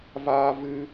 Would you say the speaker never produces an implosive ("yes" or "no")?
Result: yes